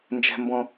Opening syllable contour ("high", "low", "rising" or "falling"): high